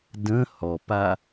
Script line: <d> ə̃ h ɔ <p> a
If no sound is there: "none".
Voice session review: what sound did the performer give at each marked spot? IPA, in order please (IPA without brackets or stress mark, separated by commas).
d, p